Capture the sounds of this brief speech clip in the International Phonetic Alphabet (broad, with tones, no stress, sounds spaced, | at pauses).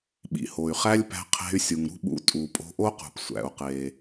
ɓ ḭ˩ h o˩ y̯ χ æ˥ lʲ p æ̤˧ qʰ e̤˧ y̯ sʲ u˩ ŋ ɾ ṳ˥ ɓ ṵ˧ tʼ u˩ pʼ o̤˧ ʔ o˥ q ṳ˩ p sʷ æ̰˩ u̯ q e˩